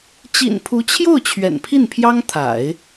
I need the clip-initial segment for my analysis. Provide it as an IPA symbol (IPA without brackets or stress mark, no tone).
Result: t͡ɕ